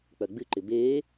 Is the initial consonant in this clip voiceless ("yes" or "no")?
yes